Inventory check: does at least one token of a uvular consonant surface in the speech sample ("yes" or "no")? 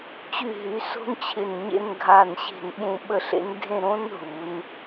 no